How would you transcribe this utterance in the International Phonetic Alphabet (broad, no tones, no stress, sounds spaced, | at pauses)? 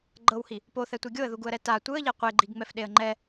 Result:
ɡ͡ǃ ɤ w h i | p o θ ɛ tʷ e ɡʲ o ə̯ ð u ɡ u ə̯ ɾ ɛ t a tʷ ɯ ə̯ ʎ ɛ qʷ e ɡ͡ǃ i ɡ ŋ͡m ɛ f ɗ e ə̯ ŋ͡ǃ ɛ